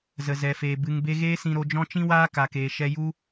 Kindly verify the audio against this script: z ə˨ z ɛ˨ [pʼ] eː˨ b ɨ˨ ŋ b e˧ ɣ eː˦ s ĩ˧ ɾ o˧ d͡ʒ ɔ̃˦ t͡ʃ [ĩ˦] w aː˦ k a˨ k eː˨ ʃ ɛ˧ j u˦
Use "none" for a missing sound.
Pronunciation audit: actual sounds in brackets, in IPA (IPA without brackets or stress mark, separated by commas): f, ĩ˦